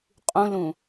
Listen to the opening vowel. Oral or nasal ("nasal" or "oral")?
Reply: nasal